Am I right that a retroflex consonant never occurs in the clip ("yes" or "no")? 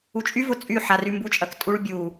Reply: no